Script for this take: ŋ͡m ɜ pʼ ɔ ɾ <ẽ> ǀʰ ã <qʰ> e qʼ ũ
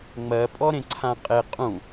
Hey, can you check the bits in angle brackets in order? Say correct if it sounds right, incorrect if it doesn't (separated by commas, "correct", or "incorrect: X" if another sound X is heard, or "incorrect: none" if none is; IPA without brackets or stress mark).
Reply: correct, incorrect: qʼ